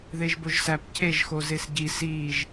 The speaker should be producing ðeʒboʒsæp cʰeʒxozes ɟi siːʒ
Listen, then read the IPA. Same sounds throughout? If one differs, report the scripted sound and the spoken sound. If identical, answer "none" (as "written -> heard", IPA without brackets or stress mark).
none